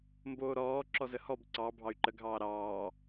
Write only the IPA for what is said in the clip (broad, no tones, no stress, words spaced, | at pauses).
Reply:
mboːɾɔː ǁɔzəhɔb ǀɑ bʱɑy̯ǃəɡʱɑː ɾɑː